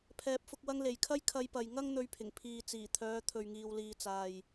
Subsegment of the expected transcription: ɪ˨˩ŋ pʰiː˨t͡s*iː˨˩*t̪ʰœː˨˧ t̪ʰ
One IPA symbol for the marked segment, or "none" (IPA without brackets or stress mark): iː˨˩